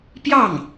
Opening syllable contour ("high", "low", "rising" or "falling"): falling